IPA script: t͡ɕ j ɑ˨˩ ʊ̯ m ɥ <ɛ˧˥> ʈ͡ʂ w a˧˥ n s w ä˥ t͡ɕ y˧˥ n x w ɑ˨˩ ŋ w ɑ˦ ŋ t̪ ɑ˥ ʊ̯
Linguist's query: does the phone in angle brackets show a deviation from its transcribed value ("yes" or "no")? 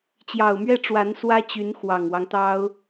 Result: yes